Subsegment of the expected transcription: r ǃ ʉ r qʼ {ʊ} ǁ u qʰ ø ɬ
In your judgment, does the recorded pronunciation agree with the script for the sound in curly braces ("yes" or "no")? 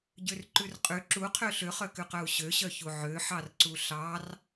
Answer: no